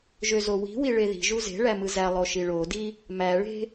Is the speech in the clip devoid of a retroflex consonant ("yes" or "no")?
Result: no